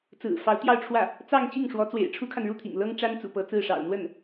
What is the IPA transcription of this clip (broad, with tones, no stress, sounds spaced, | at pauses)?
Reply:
t͡s ɹ̩˨˩ f ɑ˧˥ ʊ̯ t̪ j ɑ˥˧ ʊ̯ ʈ͡ʂʰ w ä˥˩ | t͡s ɑ˥˧ ŋ t͡ɕ i˥˩ ŋ ʂ w ɔ˧˥ t͡s w ḛ˨˩ ɪ̯ ʈ͡ʂʰ u˥ kʰ a˨ n ɻ u˥˩ t̪ʰ ḭ˨˩ ŋ l ɤ˥ ŋ ʈ͡ʂ a˥ n t͡s ṵ˨˩ p ɤ˧˥ t͡s ɹ̩˥˩ ʂ ɑ̰˨˩ ʊ̯ n̪ w ə˥˩ n